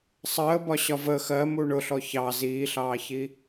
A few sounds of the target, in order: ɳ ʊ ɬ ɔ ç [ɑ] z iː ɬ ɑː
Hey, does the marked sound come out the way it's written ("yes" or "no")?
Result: yes